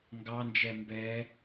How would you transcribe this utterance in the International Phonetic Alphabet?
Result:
ŋ ɡ ɑ n d͡ʒ ɛ m b ɛ

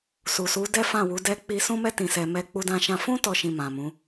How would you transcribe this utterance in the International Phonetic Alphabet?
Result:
s u˨ s u˨˦ d ɛ˦ f ã˦˨ w u˨˦ d ɛ˦ k͡p i˧ s ũ˦ m ɛ˦ t ĩ˧ s ɛ˧ m ɛ˦ k͡p u˦ d ã˧ ʃ ã˧ f ũ˦ t ɔ˦ ʃ ĩ˧ m ã˨ m ũ˨˦

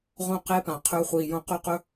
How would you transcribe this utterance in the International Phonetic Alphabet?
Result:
ʁ õ˦˨ q e˦ p ã˨ qʰ ɵː˧ χʷ iː˨ j õ˧ q ʉ˦ q ɵ˦

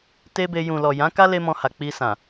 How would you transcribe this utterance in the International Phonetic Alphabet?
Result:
t e˦ b e˧ j ũ˨ l ɔ˨ j ã˨˦ k a˦ l e˦ m ɔ̃˧ h a˨ k͡p i˧ s ã˨

